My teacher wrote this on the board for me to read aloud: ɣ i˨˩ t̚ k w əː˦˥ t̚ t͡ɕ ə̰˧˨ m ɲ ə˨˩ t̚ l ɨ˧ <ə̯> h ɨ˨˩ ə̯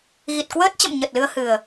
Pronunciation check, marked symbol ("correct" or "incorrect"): correct